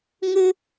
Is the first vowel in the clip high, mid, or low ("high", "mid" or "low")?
high